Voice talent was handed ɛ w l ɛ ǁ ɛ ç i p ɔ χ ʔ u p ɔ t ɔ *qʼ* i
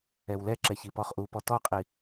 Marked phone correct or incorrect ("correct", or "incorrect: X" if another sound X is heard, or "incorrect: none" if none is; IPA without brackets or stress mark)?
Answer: correct